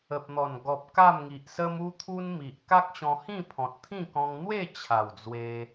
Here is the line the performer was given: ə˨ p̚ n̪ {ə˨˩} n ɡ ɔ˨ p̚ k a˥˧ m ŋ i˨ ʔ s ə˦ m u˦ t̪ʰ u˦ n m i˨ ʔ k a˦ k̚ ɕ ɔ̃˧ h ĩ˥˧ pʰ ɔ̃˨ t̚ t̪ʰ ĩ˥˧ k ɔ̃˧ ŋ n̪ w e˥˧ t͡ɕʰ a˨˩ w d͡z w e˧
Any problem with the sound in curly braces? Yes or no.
yes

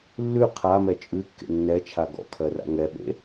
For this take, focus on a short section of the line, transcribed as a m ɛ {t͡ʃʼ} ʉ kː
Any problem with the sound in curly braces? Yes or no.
no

